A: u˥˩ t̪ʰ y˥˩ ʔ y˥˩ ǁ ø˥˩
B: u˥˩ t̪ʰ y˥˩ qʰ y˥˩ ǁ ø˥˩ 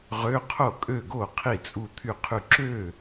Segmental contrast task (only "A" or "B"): B